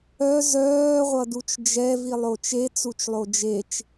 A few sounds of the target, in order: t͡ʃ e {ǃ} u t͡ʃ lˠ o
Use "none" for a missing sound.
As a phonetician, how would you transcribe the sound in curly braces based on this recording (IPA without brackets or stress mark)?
t͡s